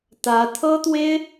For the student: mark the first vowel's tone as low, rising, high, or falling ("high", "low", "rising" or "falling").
rising